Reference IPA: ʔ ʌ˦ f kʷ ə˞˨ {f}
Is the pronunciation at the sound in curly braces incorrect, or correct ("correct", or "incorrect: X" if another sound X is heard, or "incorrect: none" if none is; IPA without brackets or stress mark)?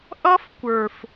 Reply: correct